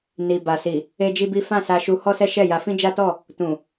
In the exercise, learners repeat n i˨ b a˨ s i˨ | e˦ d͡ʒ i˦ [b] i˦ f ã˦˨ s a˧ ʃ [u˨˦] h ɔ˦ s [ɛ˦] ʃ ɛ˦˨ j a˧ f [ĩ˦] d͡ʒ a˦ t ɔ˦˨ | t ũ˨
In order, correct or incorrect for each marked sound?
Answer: correct, incorrect: u˧, correct, correct

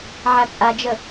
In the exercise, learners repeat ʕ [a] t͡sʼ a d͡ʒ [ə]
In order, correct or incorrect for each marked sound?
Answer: correct, correct

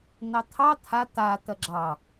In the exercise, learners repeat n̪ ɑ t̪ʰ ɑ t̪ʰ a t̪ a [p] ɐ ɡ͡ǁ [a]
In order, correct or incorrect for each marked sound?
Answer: incorrect: t̪, incorrect: ɑ

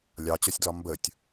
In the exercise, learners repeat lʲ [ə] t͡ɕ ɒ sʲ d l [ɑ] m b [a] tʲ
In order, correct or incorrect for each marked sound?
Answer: incorrect: ɑ, incorrect: ɒ, incorrect: ə

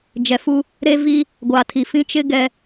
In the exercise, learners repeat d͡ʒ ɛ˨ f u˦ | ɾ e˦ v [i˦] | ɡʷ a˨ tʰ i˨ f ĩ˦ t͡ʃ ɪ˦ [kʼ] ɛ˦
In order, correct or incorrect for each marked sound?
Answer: correct, incorrect: ɡ

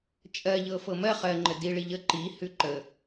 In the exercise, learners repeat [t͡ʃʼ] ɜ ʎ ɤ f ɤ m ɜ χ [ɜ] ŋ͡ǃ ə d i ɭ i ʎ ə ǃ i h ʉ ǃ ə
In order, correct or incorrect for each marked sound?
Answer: correct, correct

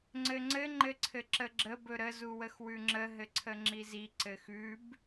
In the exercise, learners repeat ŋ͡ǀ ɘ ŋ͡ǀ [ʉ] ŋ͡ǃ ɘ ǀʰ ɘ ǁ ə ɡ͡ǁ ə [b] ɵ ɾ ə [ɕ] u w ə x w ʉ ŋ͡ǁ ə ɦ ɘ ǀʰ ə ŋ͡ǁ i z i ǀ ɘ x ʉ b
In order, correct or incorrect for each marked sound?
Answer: incorrect: ɘ, correct, incorrect: z

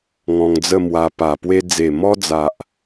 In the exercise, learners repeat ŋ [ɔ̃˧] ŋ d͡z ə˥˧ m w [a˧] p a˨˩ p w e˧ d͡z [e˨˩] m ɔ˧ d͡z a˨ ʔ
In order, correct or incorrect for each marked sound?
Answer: correct, correct, correct

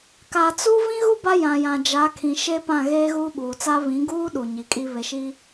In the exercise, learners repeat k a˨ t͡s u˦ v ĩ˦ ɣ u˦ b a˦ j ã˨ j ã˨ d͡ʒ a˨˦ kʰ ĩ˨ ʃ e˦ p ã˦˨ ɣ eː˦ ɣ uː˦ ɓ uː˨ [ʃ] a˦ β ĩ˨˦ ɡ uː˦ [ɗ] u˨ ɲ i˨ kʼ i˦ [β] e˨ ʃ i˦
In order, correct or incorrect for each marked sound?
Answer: incorrect: t͡s, correct, correct

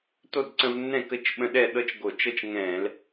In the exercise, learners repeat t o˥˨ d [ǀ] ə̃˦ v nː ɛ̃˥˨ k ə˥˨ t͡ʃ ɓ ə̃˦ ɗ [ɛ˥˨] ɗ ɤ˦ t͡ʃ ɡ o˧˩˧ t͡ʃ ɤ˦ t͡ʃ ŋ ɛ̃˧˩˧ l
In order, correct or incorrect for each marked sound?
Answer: correct, correct

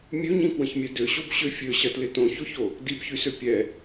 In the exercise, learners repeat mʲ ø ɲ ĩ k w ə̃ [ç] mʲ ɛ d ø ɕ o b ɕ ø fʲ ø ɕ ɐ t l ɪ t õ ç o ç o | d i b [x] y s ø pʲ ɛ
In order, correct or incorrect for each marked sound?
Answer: correct, incorrect: ç

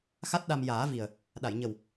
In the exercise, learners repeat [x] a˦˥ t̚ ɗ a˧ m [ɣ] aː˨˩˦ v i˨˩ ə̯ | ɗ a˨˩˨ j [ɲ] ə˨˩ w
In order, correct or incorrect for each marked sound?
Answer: correct, incorrect: j, correct

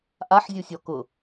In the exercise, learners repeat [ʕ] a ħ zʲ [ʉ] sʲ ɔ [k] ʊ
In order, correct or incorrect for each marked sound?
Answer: incorrect: ʔ, incorrect: u, correct

